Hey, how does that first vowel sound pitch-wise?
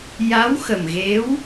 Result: rising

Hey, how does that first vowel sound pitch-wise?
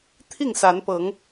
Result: falling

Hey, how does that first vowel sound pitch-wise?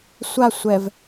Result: falling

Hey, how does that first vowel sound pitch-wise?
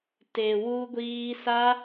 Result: low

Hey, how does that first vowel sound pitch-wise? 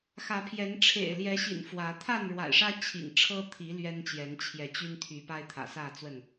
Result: rising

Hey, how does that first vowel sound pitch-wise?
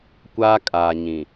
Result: high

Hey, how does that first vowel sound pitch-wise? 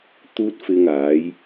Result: high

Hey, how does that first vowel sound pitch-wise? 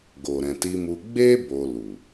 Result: low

